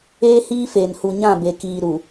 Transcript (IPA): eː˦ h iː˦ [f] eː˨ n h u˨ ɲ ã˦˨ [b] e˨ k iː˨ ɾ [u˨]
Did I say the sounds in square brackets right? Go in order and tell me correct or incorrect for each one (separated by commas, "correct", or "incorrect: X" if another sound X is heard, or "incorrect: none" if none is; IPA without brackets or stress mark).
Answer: correct, correct, correct